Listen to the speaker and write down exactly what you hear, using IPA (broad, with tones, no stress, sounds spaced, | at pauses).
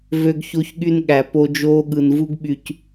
v ø˧ ɡ ç o˧ ç ɠ y˧ n ɠ æ˨ p o˧ d͡ʒ oː˧ ɠ ɯ˨ n v u˧ ɡ ɓ y˨ c